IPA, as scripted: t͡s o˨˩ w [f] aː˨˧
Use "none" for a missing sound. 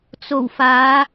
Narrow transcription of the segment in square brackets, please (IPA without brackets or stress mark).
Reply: f